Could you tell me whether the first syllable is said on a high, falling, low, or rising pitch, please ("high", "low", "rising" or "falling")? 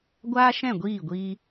high